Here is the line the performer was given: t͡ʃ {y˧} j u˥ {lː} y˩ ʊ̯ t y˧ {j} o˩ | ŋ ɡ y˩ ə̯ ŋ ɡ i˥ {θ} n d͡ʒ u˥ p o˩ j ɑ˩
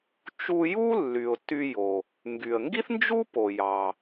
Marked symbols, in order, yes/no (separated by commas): no, yes, yes, yes